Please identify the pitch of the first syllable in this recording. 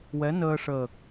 rising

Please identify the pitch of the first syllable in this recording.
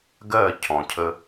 falling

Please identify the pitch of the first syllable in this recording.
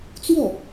falling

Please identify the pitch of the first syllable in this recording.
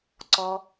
low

